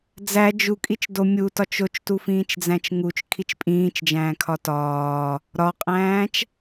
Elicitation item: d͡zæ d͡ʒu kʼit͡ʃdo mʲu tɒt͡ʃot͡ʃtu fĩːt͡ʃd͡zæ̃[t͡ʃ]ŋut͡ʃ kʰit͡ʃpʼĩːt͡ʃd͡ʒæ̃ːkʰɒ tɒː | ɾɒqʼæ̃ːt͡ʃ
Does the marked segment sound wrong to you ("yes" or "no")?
no